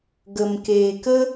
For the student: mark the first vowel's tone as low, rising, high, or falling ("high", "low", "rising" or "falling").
low